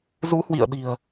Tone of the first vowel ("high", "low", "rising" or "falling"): rising